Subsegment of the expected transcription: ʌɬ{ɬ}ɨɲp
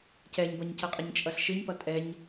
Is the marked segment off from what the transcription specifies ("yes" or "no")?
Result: yes